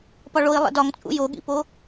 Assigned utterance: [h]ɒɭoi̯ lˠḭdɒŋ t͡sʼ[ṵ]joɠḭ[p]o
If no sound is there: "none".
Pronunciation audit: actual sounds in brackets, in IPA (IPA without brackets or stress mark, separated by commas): p, ṵ, p